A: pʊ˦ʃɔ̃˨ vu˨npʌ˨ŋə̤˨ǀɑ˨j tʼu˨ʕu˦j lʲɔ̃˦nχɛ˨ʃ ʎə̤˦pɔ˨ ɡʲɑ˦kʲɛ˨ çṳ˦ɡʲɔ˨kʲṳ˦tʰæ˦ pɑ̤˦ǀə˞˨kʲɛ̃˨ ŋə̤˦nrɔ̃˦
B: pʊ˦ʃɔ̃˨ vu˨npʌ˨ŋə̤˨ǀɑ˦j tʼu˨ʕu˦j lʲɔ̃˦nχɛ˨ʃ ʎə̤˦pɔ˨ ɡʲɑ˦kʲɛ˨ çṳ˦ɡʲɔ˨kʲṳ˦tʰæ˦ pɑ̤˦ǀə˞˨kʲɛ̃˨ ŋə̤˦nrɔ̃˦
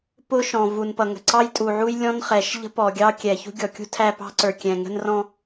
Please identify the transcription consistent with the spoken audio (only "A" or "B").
B